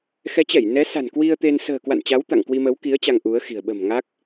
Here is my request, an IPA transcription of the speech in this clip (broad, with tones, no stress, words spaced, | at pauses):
xɛ˨˦t͡ɕɛ˧˩j nɛ˨˦sa̤˨˩n kwi˧ə̯t̪e˧n sə̤ː˨˩kwa̰˧˨nt͡ɕa˨˦w t̪a̰˧˨ŋkwi˧ mə˨˦wki˨˦ə̯ t͡ɕa˧ŋʔu˨˦ə̯xi̤˨˩ə̯ ɓə̤˨˩m ŋa˦˥k̚